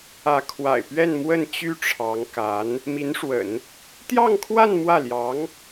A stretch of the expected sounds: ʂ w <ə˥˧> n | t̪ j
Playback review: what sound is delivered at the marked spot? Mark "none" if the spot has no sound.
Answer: ə̰˨˩˦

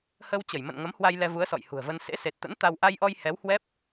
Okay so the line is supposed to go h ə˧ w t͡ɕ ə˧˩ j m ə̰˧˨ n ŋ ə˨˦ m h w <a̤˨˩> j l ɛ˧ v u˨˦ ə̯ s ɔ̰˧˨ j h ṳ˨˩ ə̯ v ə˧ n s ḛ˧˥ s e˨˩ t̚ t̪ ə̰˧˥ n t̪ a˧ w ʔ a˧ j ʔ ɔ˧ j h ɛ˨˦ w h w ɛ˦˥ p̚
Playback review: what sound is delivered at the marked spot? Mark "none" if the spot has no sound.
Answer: a˧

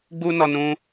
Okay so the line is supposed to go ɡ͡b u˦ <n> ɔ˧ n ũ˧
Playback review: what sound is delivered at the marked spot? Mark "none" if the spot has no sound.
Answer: n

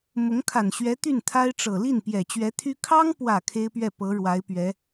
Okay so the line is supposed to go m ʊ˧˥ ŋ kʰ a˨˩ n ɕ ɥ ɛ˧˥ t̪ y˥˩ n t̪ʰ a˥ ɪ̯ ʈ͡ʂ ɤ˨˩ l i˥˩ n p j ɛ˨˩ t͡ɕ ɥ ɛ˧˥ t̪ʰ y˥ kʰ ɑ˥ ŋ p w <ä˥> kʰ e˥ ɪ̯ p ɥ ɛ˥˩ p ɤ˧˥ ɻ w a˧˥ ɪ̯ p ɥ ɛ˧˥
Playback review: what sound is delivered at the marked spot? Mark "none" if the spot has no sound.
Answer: ä˨˩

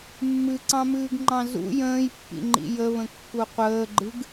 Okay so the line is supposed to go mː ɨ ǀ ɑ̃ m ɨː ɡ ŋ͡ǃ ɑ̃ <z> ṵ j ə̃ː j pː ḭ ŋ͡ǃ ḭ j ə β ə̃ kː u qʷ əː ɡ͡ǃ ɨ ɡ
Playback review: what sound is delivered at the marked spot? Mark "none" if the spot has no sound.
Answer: z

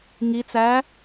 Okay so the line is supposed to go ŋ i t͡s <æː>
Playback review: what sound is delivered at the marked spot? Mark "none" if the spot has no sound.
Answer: æː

